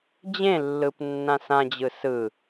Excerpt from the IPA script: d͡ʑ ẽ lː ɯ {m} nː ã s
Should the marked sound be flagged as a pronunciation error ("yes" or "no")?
yes